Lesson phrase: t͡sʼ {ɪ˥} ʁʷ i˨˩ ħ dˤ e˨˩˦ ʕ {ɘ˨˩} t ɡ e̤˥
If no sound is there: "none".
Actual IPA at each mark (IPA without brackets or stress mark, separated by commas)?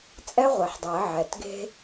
ɛ˥, ɛ˨˩